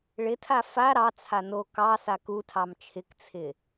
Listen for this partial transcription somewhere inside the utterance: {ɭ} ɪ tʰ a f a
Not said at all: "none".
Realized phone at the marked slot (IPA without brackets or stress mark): ɭ